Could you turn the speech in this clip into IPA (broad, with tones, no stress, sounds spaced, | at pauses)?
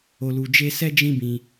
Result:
o˧ l u˧ d͡ʒ e˦ s ɛ˦ d͡ʒ ĩ˦ b ĩ˧